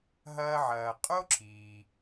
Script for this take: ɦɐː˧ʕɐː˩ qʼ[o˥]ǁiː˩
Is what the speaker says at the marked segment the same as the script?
yes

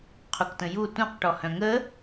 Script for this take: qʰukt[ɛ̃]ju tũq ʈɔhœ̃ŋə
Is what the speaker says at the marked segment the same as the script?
no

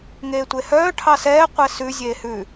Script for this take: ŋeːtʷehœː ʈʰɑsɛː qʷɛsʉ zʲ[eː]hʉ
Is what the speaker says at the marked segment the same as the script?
yes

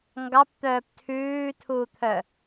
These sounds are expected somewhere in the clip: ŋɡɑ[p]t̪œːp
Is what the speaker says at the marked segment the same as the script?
yes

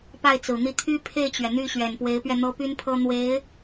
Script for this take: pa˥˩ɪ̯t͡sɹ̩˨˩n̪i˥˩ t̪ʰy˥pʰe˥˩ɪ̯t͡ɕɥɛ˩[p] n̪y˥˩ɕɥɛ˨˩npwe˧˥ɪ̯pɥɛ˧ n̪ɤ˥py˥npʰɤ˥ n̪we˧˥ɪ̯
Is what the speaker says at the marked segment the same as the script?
no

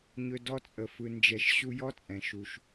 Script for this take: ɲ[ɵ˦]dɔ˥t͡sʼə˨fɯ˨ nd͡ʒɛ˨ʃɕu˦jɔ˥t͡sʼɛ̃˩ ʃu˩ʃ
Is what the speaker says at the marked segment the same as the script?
yes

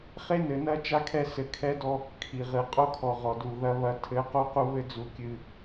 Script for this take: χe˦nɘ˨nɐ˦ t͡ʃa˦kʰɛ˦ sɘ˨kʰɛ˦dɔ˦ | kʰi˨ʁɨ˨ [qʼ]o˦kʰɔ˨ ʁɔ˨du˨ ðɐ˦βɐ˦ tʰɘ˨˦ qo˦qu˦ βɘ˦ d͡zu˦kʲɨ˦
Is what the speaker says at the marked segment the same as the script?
yes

